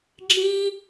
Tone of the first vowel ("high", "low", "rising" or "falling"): high